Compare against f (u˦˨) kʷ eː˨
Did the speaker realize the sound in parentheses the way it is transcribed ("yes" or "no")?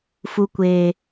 no